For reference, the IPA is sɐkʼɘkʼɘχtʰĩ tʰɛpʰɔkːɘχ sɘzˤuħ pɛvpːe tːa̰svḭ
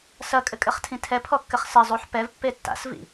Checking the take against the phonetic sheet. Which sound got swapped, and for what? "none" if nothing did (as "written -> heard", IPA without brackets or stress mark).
none